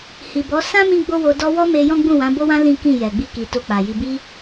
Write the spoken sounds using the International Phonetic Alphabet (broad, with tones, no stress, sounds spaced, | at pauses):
h i˨ b ɔ˨˦ s ã˦ m ĩ˦ ɡ͡b o˦ w o˧ d ɔ˧ w ɔ˦ m e˧ j ɔ̃˦ ɡ͡b ũ˦˨ w ã˨˦ b o˦ w ã˦ l ĩ˦ k ĩ˦˨ j ɛ˨ ɡ͡b i˧ k i˨ t o˧ k͡p a˨ j i˧ b i˧